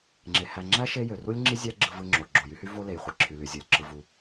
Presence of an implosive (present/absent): absent